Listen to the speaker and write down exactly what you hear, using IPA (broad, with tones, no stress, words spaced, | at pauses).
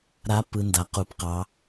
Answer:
ɾa˧˥ pɯ˧ nda˧qu˧˥pqɑ˧˥